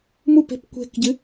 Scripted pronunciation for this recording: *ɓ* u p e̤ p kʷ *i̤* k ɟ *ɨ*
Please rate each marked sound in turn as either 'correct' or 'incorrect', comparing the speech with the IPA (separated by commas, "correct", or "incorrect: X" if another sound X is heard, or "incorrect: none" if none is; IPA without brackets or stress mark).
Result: incorrect: m, incorrect: e̤, correct